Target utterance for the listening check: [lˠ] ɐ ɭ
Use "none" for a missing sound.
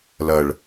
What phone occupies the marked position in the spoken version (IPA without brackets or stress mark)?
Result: l